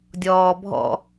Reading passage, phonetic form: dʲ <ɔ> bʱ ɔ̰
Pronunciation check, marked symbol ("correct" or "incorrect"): incorrect